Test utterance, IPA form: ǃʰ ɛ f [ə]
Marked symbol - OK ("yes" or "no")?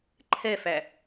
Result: no